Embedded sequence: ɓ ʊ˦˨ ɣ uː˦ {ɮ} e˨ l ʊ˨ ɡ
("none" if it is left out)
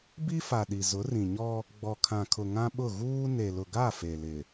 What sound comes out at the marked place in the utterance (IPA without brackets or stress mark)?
n